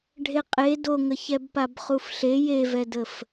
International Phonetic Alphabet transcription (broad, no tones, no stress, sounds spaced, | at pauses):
ɖʱ e qʼ e d o ŋ ə ç ɛ b p a b χ u f ɬ e j e v ɛ d ə f